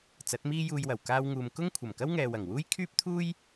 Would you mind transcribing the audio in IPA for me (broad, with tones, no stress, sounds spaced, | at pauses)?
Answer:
t͡s ɐ˨˥ t̚ m iː˥ j uː˧ j w ɐ˨˩ w k aː˧ w ŋ uː˨ m k ʊ˥ ŋ kʷʰ ɐ˨˩ m k ɐ˥ w ŋ ɛː˨ w ɐ˨˩ ŋ w uː˥ j kʰ yː˥ p̚ t̪ʰ uː˥ j